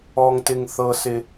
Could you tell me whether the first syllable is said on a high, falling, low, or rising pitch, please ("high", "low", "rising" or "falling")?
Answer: high